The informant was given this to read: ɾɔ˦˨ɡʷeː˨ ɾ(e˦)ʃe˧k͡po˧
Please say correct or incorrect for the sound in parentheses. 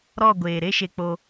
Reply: correct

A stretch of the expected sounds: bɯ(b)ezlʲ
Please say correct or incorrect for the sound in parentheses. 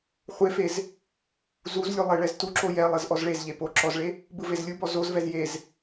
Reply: incorrect: v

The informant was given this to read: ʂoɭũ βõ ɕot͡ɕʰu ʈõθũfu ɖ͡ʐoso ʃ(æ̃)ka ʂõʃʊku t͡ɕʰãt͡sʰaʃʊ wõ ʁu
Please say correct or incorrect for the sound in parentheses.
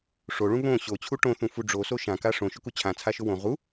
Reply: incorrect: ã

